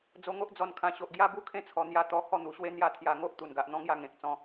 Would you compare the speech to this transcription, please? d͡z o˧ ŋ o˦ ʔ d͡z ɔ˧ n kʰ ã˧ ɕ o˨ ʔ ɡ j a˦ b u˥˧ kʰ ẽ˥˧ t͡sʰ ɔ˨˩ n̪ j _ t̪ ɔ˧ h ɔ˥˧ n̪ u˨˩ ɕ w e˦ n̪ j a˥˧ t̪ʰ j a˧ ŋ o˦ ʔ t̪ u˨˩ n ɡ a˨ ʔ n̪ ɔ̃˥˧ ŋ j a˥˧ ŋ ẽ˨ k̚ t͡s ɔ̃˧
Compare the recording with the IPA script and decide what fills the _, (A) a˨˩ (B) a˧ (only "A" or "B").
B